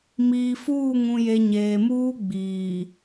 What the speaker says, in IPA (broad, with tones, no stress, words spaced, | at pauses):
miː˨fuː˦˨ŋũ˨je˨ ɲeː˨muː˦ɡ͡biː˨